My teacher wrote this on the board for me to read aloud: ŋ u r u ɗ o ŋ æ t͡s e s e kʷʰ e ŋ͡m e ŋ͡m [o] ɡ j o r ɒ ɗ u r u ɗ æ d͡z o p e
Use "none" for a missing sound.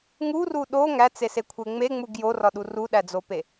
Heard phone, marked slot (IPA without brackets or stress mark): u